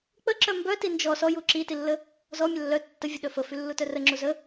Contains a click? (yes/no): yes